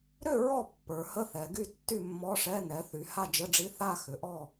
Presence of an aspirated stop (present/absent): absent